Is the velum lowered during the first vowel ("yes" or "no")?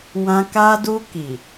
yes